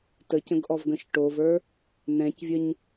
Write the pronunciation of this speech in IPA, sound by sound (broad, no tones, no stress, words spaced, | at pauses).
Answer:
təcə̃ɡʔɔvɡə̃ʃ ʈovə˞ | nɛ̃cvʲəɲ